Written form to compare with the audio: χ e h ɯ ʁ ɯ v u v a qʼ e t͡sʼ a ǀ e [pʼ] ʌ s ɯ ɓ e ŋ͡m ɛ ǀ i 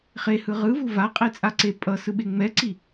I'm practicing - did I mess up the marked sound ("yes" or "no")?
no